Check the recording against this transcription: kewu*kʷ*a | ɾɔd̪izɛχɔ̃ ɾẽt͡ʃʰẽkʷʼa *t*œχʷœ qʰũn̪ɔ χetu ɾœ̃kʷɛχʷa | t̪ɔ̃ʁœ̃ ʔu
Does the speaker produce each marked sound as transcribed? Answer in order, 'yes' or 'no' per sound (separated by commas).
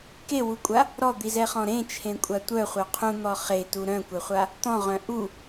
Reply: no, no